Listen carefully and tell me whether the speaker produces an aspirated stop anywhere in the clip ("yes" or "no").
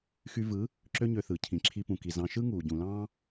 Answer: yes